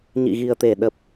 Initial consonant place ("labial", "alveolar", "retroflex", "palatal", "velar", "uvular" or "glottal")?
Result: palatal